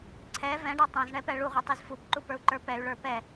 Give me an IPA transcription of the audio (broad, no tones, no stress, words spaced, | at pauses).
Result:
ǀʰɛ vɛ̃ɖʌ tˤɛ̃zɳɛpɛ ɭuʁʷitˤiz fupǃupə˞u̯ǃə˞ pɛy̯ɭə˞ pɛ